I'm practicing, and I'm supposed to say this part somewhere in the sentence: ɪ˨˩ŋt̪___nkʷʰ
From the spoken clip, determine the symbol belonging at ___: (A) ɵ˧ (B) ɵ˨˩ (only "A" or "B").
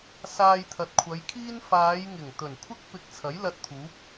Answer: B